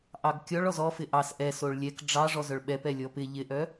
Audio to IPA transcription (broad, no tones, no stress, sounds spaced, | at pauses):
ʔ ɑ ɡ kʲ ɔ ɭ ɔ z ɔ f ɪ ʔ ɑ s ʔ ɛ s o ɭ lʲ ɛ k ɖ͡ʐ ɑ ʐ ɔ z œ ɭ ɓ ɛ p ɛ lʲ ɔ p ɪ ʎ ɪ ʔ œ